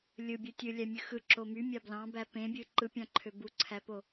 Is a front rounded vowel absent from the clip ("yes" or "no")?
no